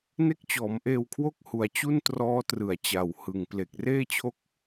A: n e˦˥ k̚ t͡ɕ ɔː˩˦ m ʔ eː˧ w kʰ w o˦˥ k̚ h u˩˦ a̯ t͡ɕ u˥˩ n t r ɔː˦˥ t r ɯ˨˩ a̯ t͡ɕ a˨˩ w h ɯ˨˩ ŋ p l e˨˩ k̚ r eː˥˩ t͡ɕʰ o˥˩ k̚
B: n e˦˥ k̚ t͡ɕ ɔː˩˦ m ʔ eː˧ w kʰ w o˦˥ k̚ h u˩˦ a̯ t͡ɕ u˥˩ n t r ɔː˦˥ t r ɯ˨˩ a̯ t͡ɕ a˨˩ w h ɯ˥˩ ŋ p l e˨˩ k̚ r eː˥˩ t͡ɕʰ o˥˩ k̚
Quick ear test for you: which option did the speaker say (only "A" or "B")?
A